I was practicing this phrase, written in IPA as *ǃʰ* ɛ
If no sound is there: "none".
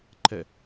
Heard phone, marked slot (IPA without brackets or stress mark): ǃʰ